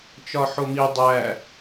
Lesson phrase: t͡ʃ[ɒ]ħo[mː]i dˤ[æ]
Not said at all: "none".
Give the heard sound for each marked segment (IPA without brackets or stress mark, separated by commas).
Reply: ɒ, m, æ